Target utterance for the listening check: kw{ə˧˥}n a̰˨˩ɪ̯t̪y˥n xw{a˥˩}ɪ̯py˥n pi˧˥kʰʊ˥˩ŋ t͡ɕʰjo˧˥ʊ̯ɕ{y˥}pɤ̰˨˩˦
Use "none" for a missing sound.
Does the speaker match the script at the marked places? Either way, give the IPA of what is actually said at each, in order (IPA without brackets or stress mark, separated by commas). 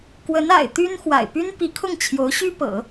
ə˧˥, a̰˨˩, y˥